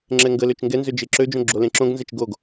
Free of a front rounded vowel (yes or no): no